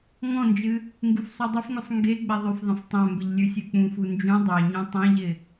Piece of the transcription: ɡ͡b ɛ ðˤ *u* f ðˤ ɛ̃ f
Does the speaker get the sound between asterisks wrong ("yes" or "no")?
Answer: yes